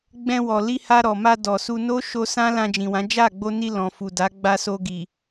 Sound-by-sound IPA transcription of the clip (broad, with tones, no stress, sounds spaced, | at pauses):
ɡ͡b ɛ̃˧ w ɔ˨ l i˧ h a˧ ɾ ɔ˨ m a˧ d ɔ˨ s u˧ n o˦ ʃ o˧ s ã˦ l ã˧ d͡ʒ ĩ˨ w ã˨˦ d͡ʒ a˦˨ ɡ͡b o˧ n i˧ l ɔ̃˨ f u˨ d a˨˦ ɡ͡b a˧ s o˧ ɡ i˨